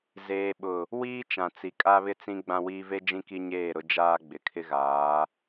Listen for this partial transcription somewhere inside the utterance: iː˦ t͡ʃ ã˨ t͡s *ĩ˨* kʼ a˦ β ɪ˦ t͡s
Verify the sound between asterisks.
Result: incorrect: i˨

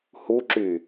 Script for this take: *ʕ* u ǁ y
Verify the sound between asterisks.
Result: incorrect: h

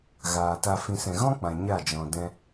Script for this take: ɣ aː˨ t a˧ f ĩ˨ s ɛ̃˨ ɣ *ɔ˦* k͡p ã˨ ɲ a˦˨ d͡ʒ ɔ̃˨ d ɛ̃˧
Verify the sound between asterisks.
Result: incorrect: ɔ̃˦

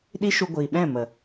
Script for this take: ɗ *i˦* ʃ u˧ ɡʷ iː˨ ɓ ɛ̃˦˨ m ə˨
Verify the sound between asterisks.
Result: correct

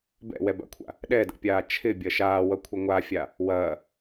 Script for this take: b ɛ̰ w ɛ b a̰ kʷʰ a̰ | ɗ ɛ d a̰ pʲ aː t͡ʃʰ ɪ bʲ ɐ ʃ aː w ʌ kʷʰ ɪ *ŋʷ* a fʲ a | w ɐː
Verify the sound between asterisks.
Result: correct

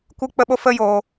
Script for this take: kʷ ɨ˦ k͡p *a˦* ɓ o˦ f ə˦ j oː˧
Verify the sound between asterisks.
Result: incorrect: ə˦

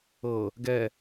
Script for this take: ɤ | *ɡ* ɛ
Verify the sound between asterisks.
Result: correct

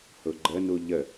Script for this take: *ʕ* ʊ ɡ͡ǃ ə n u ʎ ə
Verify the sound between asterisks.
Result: incorrect: h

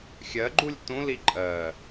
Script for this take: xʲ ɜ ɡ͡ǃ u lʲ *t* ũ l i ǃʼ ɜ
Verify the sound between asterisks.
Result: correct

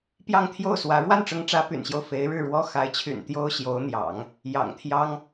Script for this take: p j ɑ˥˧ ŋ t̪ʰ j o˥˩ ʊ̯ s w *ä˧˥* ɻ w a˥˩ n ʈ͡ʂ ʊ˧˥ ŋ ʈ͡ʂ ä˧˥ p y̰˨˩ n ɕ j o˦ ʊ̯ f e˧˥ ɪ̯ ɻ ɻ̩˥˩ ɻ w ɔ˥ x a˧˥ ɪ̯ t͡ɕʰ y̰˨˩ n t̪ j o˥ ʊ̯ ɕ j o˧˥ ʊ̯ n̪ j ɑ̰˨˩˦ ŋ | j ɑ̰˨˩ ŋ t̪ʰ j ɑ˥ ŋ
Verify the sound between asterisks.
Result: correct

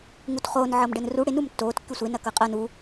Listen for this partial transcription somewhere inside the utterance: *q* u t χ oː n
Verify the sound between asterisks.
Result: incorrect: ŋ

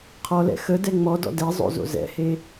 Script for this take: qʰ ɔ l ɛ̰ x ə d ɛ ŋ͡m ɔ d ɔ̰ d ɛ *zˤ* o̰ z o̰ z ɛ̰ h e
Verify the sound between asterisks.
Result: correct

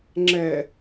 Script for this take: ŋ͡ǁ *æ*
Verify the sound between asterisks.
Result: incorrect: ɛ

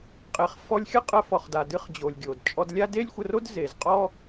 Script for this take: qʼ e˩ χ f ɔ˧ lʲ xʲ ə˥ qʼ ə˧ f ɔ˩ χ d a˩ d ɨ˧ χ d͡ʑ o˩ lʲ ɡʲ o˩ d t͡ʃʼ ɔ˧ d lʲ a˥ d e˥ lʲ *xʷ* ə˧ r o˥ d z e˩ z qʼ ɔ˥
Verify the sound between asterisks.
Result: correct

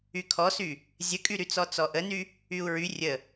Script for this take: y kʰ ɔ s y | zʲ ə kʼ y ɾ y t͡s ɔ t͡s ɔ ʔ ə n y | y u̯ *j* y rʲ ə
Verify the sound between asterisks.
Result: incorrect: ɹ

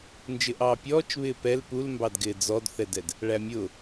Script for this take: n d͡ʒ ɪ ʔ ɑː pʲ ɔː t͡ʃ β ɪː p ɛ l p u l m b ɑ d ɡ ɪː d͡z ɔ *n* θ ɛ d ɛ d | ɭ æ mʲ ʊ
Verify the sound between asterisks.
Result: incorrect: d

